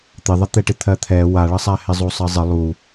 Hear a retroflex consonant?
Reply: yes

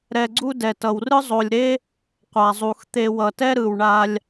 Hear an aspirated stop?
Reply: no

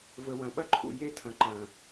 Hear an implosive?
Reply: yes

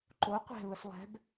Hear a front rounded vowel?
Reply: no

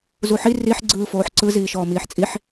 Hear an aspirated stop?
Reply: no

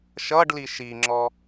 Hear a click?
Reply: yes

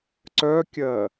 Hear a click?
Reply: yes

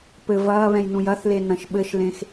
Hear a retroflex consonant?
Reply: no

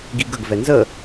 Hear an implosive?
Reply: no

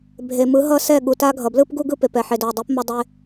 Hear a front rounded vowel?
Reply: no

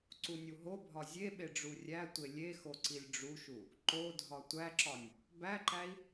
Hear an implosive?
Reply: yes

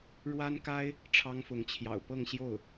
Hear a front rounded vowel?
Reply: no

